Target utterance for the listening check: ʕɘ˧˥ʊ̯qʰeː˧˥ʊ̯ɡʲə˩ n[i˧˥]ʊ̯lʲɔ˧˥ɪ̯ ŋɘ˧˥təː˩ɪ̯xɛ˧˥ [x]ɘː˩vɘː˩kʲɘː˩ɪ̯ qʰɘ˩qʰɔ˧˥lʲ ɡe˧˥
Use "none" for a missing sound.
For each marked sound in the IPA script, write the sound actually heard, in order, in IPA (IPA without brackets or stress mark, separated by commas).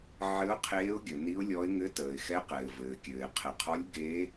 i˧˥, q